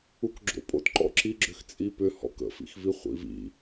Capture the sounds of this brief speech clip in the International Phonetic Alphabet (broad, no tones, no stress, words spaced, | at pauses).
ukɡ͡ǁo̰pʼo̰t ǃɔ̰ǁiɡ͡ǁʏx t͡sʼipʏ hɔ̰kə̰fḭxvi χʷḭvḭ